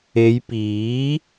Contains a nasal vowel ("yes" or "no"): no